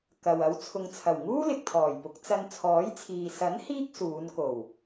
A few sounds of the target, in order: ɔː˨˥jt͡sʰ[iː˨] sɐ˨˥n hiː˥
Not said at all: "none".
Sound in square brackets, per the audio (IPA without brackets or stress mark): iː˨